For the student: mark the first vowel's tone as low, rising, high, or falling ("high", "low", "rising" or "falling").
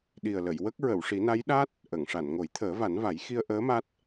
low